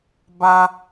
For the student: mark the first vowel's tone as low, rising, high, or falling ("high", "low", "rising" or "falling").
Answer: high